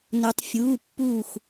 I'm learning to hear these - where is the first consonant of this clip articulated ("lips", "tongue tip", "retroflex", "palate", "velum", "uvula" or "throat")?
tongue tip